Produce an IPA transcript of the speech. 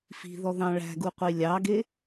fi̤ðɔðɑ̃ ɭæ̤ɡuqʷi lʲɑɡe

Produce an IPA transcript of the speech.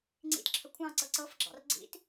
ŋ͡ǀḭtǁʰə kʷʰɑ̃ǀɤ ǀɤfɡ͡ǁɑ̰r ɡ͡ǀḭt

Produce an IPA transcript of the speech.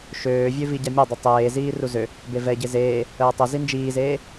ʃøː vʲøviɟamʲa dˤʊtˤeː ziːruzø | bevɛ ɟezeː | əːtˤʊ zind͡ʒiːzeː

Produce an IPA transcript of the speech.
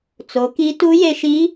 t͡so˩˧ ki˧˥ tu˧˥je˧ʃi˧˥

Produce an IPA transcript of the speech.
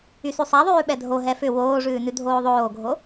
ysʉsˤaðˤʉː ɓɛdʱo ɦɛfʏ woːʐʉːnʉ dʱoːðˤoːɡʱo

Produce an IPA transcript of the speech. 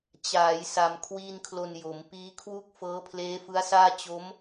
t͡ɕaː˩˦j sa˧mkʰwiː˥˩n kʰlo˧njo˩˦m piː˦˥kʰwu˥˩k̚fɤː˦˥ pʰleː˦˥fɯ˦˥a̯saː˥˩ t͡ɕo˦˥m

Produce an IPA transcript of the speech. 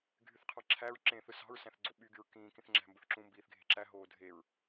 ɡʱyθqʰɑǁʰæɹ ǁẽθɯ sɑ̤ɹsæ̃θ ɡ͡ǀoɓyɡyɹ kĩːkĩθ ŋ͡ǁæ̤mbɯθǁũ mbiːθɡʱe̤ǁæ ɦoːdʱeɹ

